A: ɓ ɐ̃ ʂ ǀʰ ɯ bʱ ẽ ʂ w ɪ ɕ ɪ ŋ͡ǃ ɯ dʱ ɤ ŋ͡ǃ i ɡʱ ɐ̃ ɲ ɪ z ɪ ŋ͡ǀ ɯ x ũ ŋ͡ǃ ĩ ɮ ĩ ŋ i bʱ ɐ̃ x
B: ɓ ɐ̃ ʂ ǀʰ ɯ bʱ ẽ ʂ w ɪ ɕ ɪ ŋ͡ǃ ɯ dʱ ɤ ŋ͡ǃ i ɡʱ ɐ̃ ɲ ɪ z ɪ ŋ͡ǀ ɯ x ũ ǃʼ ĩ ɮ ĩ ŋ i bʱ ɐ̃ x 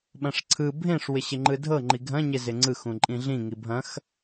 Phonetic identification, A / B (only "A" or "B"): B